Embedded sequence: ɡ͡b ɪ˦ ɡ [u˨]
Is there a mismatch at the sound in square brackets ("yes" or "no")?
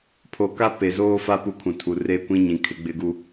yes